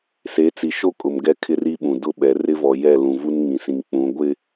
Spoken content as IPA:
se˨˦t͡si˨ʃo˦kʼʊ˨m ɡɛ˦kʰɪ˦ri˦ɓũ˨ dʊ˦ɓɛ˨˦ rɪ˦vɔ˨jɛ˦˨lũ˨ vu˦nŋĩ˨sĩ˨ŋ k͡pũ˨˦ ɡʷɪ˦

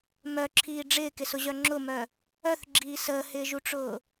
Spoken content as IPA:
mœǁʰiː ɖ͡ʐɪːkɪsʊʑœ ŋ͡ǁʊmœ | œθɡ͡ǁiː səːhɪːʒuʈ͡ʂʊː

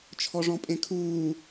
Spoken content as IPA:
t͡ʃʰɔʐɔ̃pʼẽkʰuː

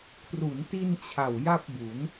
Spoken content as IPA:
kʰru˩˦nti˧nt͡ɕʰa˨˩w ja˥˩p̚bu˩˦n

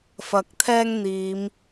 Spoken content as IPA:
fɐ˨˥k̚t̪ʰɛː˥ŋn̪iː˨˧m

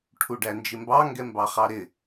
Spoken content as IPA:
ʈʰuɖænd͡ʒɪmbɑ ŋɡɛmbɑχɑɾɪ

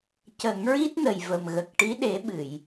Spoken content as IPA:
cə˨˩˦ŋɹi˦˥t̚nə˨˩j və˨˩mɣə˨˩k̚ ʈi˧˥ɗe˨˩˦ɓɨ˨˩˨j

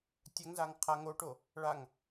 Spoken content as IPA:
tʲɛŋzaŋ qʰa ŋoʈo | ɭaŋ

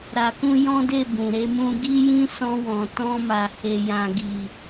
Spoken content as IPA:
ɾa˧kũ˦ jɔ̃˦de˦˨ bũ˨ɾe˧mũ˧ ɡi˦jĩ˦sɔ̃˧ wɔ̃˨tɔ̃˧ma˨ he˨jã˨ɡi˨

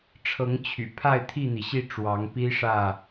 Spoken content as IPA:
ʈ͡ʂʰɤ˨˦ŋ t͡ɕʰy̰˨˩pʰa˥˨ɪ̯ t̪ʰi˥˨n̪i˩ɕi˥˨ ʈ͡ʂwɑ˨˦ŋpi˦ʂä˥˨

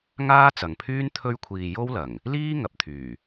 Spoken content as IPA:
ŋaː˥t͡sɐ˨ŋpʰyː˥n t̪ʰɵ˧ɥkʷʰiː˨ jo˥wlɐ˨˩ŋ | liː˥ ŋɐ˨p̚t̪ʰyː˨˩

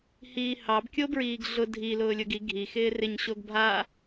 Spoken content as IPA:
hiːhɑb kʲobɹiːɡɮʊ dʱi lʊːlʲʊɡi ɡʱi xɪːrɪɲ ɕoɡbʱa

